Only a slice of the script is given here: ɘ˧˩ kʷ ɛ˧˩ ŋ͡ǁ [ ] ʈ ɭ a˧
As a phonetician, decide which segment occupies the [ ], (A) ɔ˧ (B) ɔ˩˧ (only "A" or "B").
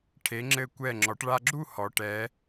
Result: B